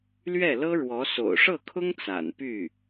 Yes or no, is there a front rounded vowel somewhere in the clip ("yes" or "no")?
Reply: yes